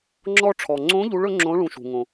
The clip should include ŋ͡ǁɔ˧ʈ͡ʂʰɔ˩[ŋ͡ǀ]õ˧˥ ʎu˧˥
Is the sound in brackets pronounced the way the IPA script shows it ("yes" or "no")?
yes